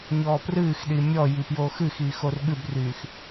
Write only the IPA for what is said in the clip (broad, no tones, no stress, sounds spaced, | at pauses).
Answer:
ɲ ɔː p r ɨː x ɗ i mʲ ɔ j i p j oː x ɨ x iː x o r ɠ ɨ b r yː x